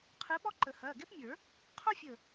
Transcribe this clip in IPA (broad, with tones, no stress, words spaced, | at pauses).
qʰɯ˧˥ɓɔ˥ ǃə˨˩˦hɐː˩˧˩ɡɛ˥pmʲə˞˨˩˦ | qʰo˥fʲə˧˩